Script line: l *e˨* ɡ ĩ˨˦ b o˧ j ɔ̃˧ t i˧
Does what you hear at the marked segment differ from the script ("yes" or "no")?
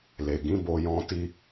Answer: no